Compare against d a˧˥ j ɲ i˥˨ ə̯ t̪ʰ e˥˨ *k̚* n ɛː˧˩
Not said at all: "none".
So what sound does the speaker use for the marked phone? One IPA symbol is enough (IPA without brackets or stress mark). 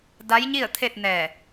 t̚